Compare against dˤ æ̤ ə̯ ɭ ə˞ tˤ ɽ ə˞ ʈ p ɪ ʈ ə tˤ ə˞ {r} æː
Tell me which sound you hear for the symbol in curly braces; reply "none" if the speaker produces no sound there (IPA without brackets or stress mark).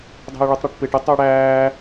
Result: ɽ